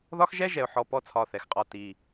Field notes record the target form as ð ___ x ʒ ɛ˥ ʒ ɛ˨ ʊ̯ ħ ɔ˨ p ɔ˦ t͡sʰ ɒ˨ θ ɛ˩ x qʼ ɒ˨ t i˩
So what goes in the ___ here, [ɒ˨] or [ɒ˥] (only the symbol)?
ɒ˥